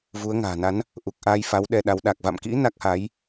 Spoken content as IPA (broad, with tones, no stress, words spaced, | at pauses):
vu˨˦ə̯ŋa̤ː˨˩na˨˦n | ʔu˨˩k̚ʔaː˧jfa˨˦w ɗɛ˧ɗa˨˦w ɗa˨˩k̚va̰˧˨mkḭ˧˥ na˦˥k̚ha˨˦j